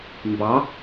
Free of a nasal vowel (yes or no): yes